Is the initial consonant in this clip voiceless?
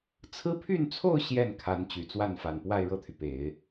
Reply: yes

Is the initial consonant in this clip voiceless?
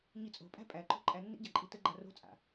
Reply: no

